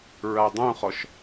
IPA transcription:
ɹ a dˤ ũ χ ɔ ʃ

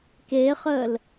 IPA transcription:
k e χ əː l

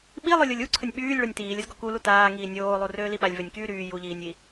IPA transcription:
ɓ i lˠ o lʲ o lʲ u ǀʰ ə nʲ ɓ yː lʲ ɭ o nʲ t iː lʲ ə z ɡ ɔ k u l u t aː ŋ iː nʲ oː lˠ u r øː l i ɓ a lʲ v ø nʲ k yː ɾ yː j u ʎ iː nʲ i

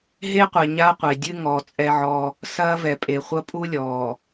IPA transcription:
ɦ e˦ qʷ ɛ˨ ɲ a˦ qʷ e˨ dʲ ɨ˦ ŋ ɔː˨ t͡sʼ ɛ˦ ʕ ɔ˦ | s ɐː˦ v ɛ˨ pʼ e˨ χʷ ɐ˦ pʼ u˦ lʲ ɔː˨

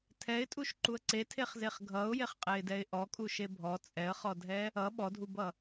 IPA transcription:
tʰ ɛ ɪ̯ tʼ u ʃ ǃ u ə̯ ǀ e tʰ e χ z e χ ɡʱ ʌ ʊ̯ j e χ qʼ ɛ ɪ̯ d ɛ ɪ̯ ʔ ɔ kʼ u ʃ e bʱ ɔ t͡sʼ ɛ ə̯ χ ɔ dʱ ɛ | ʌ ɓ ɔ dʱ u b ʌ

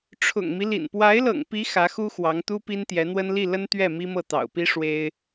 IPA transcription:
ʈ͡ʂʰ ʊ̰˨˩ ŋ m i˦ l ḭ˨˩ n p w a˧˥ ɪ̯ l ɤ̰˨˩ ŋ p i˧˥ x ä˧˥ x u˥ x w ɑ˧˥ ŋ t̪ u˥ p i˥ n t̪ j ɛ˧˥ n̪ w ə˥ n l i˥˩ l ə˥ n t̪ ɥ ɛ˥˩ m i˥ m ɤ˥˩ t̪ ɑ̰˨˩ ʊ̯ p i˥ ʂ w e˥ ɪ̯

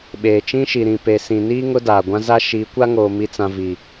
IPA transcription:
ɓ eː˨ t͡ʃ ĩ˦ ʃ i˨ ɾ ĩ˨ p e˨ s ĩ˨ n iː˦ ŋ ʊ˦ d aː˨ ɡʷ ã˦ z a˦ ʃ iː˨˦ kʷ a˦ ŋ oː˨ m i˨ t͡s ã˨ v i˨

